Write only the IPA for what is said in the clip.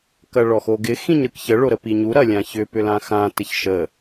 k ɐ ɭ ɔ x o ɡ ɪ x ĩ ɲ ɾ ɯ k ç ə ɭ o ɾ ə p i ɲ u ɾ ɐ lʲ ã ç ʏ p ʏ l ã x ã t ɪ ç ʃ ə

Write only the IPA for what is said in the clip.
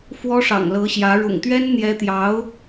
f w ɔ˥ ʂ ɑ̰˨˩ ŋ l ɤ˧˥ ɕ j ä˧˥ ɻ ʊ̰˨˩ ŋ t̪ ɥ ɛ˥ n n̪ j ɛ˧˥ t̪ j ɑ˧˥ ʊ̯

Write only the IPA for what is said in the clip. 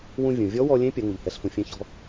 w ũ˧ vʲ ũ˩ vʲ ɔ˧˥ w ɔ˧ lʲ ẽ˧˥ pʲ ɐ˩˧ ŋ u˩ ʎ h ɛ˩˧ ɬ f ũ˩ fʲ ẽ˧ ç ɔ̤˧

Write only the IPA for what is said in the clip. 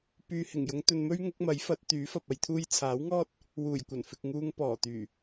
p yː˨ h ɪ˨˩ ŋ j ʊ˨˧ ŋ t̪ ɵ˨ n m ɵ˥ ɥ ŋ ʊ˨˥ k̚ m ɐ˨˥ j f ɐ˨˥ t̚ t̪ yː˨˥ f ɐ˨ p̚ ɐ˧ j t̪ʰ uː˥ j t͡sʰ aː˨˥ w ŋ ɔː˥ t̚ | w uː˨˩ j kʷ ɐ˨˩ n f ɪ˨ k̚ ŋ uː˧ ŋ p ɔː˨˩ t̪ yː˨˩

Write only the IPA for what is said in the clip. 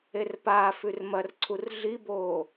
e r p aː f ʉ r m ɐ r ǀʰ u r ɮ i b oː

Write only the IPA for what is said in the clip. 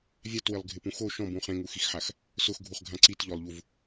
vʲ a t w ɪ lˠ ɡʱ ɪ p ũ x o ʃ ɔ̃ b ũ χ ẽ ŋ u x i x ħ a x | s ʊ x ɡʱ u χ ɡʱ ã ǀ i t ʎ ɔ lˠ ʎ u v

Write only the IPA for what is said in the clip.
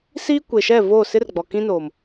s iː˦ kʷ e˨ ʃ ɛ˦˨ v oː˦˨ s ɪ˦ r ɡ͡b ɔ˨ k ĩ˦ n oː˨ m

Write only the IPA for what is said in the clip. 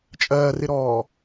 t͡ʃʼ ɜː r ɪ ɾ ɔː

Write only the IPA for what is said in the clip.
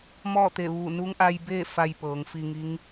m ɔː˥˨ t̪ e˧˩ ʋ u˧˩ n u˧˥ ŋ ʔ a˧ j b e˥˨ f a˧ j p ɤː˩˧ ŋ f i˧ ŋ i˧˥ ŋ

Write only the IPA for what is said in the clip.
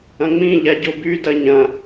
ɐ̃ ŋ͡m ĩ ʎ a ɟ o b y d ɐ ɲ ɐ̃

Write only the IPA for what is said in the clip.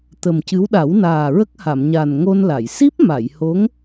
t̪ ə˨˩ m c ɨ˧˥ w ɗ a˨˩˦ w n aː˨˩ ɹ ə˦˥ k̚ h a˨˩˨ m ɲ a˨˩ n ŋ o˧ n l a˨˩˨ j s i˦˥ p̚ m a˨˩˨ j h o˧˥ ŋ

